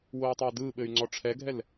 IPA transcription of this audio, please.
woy̯tˤɘu̯dɯɓɘy̯ ŋ͡ǀɔʈ͡ʂʰɛɡʱɛl

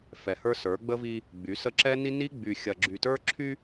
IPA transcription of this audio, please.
fɛ˨hə˞˦sə˞˨˦ ɡ͡bə˦vi˦ | ɡ͡by˨˦sə˦ ǁɛ˦ni˦ ni˦ ɡ͡by˨xʲɐ˨ɡ͡ǁy˨tə˞˦ ǁʰy˦

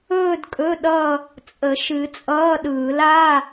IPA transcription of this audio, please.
ɵː˥˧dkʼɵ˧˥˧ ɗʌ˥˧ | t͡sʼə˨˩˦ʃɨ˨˩˦t͡sʼʌː˧˥˧ɗɯː˨˩˦l a˧˥˧

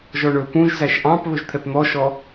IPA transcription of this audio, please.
ʒɔɳɵ pũʒ zæʃʔɑ̃p βɵʒt̪ʰɛpn̪ɔʃɔ

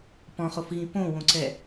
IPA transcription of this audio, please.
pɔ̃χofɣĩ põwõǀɛ

